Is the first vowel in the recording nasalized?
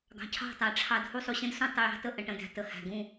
no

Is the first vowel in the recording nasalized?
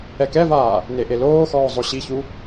no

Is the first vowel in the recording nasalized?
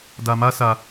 no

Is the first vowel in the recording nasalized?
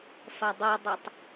no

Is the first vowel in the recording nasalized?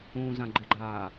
yes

